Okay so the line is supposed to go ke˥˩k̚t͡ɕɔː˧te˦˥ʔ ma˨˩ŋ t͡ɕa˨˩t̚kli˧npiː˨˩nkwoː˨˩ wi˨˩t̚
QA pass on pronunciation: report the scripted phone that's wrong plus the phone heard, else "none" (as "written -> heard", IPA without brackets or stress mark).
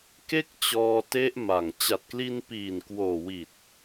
none